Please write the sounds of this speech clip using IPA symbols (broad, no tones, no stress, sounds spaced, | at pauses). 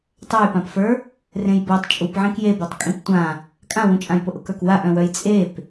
tˤ ɜ j p ã p f ə˞ | r ẽ j b ɜ tˤ t͡ʃʼ u p ʕ ẽ k j e b ɜ tˤ kʼ ĩ p tʷ ã | kʼ ã w ũ t͡ʃʼ ã j p ʊ ʔ ʊ k ə˞ k w a ʔ œ̃ w œ j t͡sʼ e p